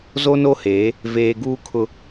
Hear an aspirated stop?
yes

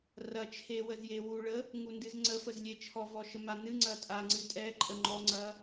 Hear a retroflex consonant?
yes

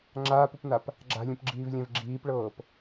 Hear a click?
yes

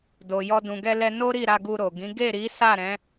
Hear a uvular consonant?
no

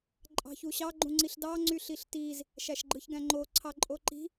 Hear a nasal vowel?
yes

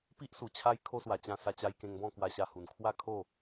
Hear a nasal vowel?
yes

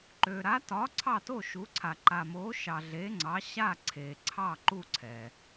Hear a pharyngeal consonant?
no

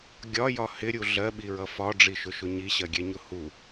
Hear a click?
no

